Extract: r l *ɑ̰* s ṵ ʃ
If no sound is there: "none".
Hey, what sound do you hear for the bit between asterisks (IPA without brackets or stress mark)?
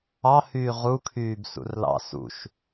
ɑ̰